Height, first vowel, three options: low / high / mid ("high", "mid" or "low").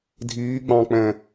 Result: high